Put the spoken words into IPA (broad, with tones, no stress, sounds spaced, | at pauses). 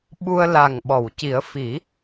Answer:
ɓ u˧ ə̯ l a˨˩ ŋ ɓ ɔ˨˩˨ w c i˨˩˦ ə̯ f i˨˩˦